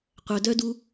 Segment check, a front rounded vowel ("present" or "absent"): present